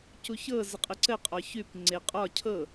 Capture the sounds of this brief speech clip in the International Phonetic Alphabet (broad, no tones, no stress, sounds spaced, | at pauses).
c u ç ɤ z ə qʼ ə ǀ ə qʼ ɒ ç ʉ p ŋ͡ǀ e qʼ ɒ cʰ ɤ